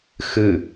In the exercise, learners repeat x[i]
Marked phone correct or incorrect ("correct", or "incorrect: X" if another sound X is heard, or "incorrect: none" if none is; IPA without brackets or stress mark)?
incorrect: ɨ